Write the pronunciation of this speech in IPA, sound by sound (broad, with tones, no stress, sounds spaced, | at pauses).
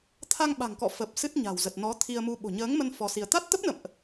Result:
t̪ʰ a˧ ŋ ɓ a̤˨˩ ŋ k ɔ̰˧˨ f ə˨˩ p̚ s ɨ˦˥ t̚ ɲ a̤˨˩ w z ə˨˩ t̚ n ɔ˨˦ t̪ʰ i˧ ə̯ m u˧ ɓ o̤˨˩ ɲ əː˨˦ ŋ m ə˧ n f ɔ˧ s i˧ ə̯ t̪ a˦˥ t̚ t̪ ə˦˥ p̚ n ə̰˧˨ m ʔ